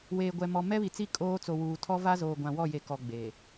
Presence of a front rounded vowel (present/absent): absent